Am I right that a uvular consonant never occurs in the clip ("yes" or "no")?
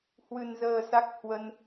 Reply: yes